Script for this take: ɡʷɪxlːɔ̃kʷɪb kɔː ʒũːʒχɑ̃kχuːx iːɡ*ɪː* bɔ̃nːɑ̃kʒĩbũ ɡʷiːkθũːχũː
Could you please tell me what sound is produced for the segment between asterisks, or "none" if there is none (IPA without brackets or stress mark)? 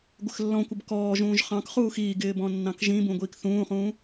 ɪː